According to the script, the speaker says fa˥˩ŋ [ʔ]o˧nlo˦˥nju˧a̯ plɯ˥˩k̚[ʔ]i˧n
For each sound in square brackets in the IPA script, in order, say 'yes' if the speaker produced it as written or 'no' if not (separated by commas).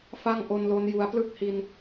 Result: yes, no